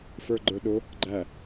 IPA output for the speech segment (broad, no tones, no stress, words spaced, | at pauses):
fə˞ɡ͡ǃə˞ ɗʊ | ɡ͡ǃæ